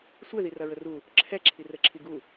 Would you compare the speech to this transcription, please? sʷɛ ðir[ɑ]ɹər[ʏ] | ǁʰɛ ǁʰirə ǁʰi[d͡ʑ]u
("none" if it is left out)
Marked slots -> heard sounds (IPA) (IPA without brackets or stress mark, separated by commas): ɐ, u, ɡ